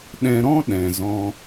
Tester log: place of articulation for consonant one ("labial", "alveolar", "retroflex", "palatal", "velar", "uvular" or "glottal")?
alveolar